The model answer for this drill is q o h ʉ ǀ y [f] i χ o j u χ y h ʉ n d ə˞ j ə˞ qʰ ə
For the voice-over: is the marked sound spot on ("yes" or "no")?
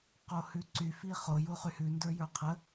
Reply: yes